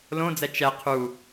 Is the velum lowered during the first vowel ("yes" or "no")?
yes